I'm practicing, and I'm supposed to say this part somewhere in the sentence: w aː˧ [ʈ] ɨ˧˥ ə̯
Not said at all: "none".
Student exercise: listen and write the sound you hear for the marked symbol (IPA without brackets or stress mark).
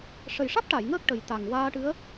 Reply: ʈ